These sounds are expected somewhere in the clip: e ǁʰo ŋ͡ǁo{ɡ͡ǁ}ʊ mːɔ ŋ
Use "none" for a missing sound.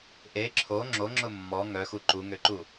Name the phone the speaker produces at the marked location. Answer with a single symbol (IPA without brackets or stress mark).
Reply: ŋ͡ǁ